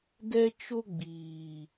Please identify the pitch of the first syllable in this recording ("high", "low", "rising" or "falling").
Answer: high